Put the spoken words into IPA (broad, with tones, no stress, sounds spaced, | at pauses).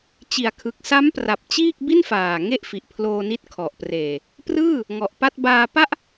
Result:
t͡ɕ i˩˦ a̯ kʰ ɯ˨˩ k̚ s a˦˥ m p r a˨˩ p̚ t͡ɕ iː˥˩ k̚ b i˥˩ n f aː˨˩ ŋ e˥˩ ʔ f i˨˩ ʔ pʰ l oː˧ n i˦˥ t̚ kʰ ɔ˨˩ ʔ p r eː˨˩ | p r ɯː˥˩ | ŋ ɔ˨˩ ʔ p a˥˩ t̚ b aː˧ p a˥˩ ʔ